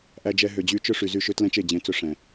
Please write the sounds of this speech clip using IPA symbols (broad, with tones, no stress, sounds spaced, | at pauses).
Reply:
ʔ æ˧ d͡ʒ ɛ˧ ɦ ø˨ d͡ʑ y˧ t͡ʃ ɵ˦ ʂ y˨ z y˦˨ ʃ ø˦ t l ɛ̃˦ t͡ʃ e˦˨ d͡ʑ ẽ˨˦ t͡s ɵ˧ ʂ ɛ̃˨